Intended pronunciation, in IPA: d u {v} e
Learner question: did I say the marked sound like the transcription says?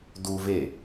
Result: yes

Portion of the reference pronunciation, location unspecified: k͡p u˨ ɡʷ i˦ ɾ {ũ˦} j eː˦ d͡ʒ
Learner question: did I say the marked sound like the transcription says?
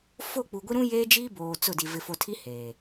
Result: yes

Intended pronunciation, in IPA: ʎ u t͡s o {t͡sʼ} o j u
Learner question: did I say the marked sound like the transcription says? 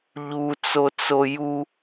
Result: no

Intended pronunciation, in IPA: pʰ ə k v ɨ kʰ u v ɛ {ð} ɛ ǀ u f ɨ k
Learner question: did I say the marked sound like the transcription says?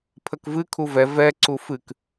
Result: no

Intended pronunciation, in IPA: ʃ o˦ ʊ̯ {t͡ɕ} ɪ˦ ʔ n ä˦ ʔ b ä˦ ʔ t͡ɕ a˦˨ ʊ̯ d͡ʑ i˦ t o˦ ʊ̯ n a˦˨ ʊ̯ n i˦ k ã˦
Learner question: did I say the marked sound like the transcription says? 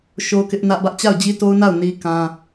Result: no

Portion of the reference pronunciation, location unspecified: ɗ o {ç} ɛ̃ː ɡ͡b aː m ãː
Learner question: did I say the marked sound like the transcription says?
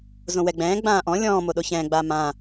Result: yes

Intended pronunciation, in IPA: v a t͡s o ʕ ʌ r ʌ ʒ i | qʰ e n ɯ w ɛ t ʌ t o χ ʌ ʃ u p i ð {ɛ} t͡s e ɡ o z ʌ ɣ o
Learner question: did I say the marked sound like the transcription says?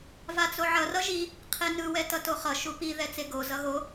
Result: yes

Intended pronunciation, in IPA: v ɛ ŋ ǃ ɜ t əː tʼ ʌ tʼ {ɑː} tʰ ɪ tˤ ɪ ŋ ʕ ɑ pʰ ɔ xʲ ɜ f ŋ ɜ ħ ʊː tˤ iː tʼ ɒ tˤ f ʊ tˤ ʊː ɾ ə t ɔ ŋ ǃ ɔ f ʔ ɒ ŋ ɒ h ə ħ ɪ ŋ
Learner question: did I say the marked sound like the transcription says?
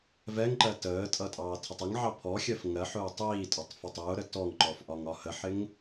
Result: yes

